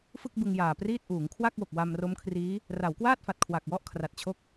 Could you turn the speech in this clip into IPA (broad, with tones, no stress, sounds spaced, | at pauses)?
f ɯ˥˩ k̚ b ɯ˧ ŋ j aː˨˩ p r iː˥˩ t̚ ʔ uː˩˦ ŋ kʰ w a˥˩ k̚ w o˨˩ k̚ w a˧ m r o˦˥ m kʰ r iː˦˥ | r a˩˦ w k w aː˥˩ t̚ f a˨˩ t̚ kʰ w a˨˩ k̚ w ɔ˥˩ ʔ kʰ r a˨˩ t̚ t͡ɕʰ o˥˩ k̚